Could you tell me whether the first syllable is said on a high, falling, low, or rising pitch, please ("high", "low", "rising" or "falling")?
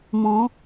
rising